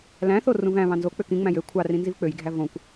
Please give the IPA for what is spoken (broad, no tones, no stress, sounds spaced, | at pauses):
l æ̃ θ o r ũ v æ̃ β ɑ̃ n z o k͡p ø k ĩ ŋ͡m æ̃ j ø kʷʰ ɑ r ĩ n z i v k͡p ø j ɡʱ æ v õ kʷ